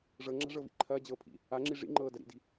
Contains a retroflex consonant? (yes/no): yes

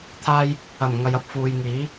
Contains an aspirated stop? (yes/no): yes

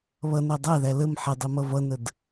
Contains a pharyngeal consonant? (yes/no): yes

